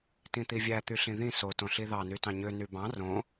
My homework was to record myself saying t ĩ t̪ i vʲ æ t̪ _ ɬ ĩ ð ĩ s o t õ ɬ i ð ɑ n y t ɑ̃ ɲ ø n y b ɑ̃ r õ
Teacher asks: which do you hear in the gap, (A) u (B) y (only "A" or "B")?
B